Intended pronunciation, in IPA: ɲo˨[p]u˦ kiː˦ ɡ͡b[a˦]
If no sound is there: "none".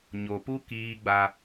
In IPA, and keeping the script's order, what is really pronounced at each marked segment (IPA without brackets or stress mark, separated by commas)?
p, a˦